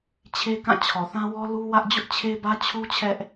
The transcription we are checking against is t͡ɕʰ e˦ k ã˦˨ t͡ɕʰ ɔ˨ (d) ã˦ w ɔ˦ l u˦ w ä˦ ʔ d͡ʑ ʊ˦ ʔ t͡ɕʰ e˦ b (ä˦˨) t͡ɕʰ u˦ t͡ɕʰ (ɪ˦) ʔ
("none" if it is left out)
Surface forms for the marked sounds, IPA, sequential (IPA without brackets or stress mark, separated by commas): θ, ä˦, ɛ˦